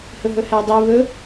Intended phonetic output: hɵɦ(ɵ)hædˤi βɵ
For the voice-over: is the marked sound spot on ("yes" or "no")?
yes